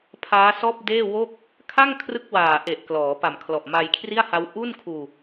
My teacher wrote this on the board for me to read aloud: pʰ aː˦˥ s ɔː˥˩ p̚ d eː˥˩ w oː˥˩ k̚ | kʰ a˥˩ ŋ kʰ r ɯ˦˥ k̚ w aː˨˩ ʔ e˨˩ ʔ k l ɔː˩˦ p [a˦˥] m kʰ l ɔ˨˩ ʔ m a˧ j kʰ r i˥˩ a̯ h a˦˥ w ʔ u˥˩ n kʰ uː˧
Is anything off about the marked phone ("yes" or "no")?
yes